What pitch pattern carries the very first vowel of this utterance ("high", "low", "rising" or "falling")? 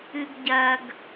high